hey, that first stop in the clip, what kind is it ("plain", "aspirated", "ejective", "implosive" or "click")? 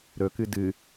plain